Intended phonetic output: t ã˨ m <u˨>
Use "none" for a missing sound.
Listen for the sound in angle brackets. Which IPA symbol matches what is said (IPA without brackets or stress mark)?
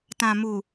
u˨